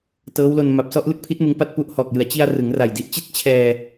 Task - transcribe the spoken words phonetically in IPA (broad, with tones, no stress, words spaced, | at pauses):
tɤː˦˥wlo˧n ma˨˩p̚sɔ˥˩ʔ lɯ˦˥k̚pʰi˦˥t̚ mɯ˦˥ŋpa˥˩t̚ pu˦˥ʔhɔː˨˩k̚jɯ˨˩a̯ t͡ɕi˧a̯ rɯ˩˦ŋra˨˩jdi˦˥ʔt͡ɕi˥˩t̚ t͡ɕʰɛː˧